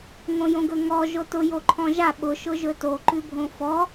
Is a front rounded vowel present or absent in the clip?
absent